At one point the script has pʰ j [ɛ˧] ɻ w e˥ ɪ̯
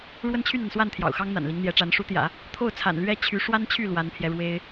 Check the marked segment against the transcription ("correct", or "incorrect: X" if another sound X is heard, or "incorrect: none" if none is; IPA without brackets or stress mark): correct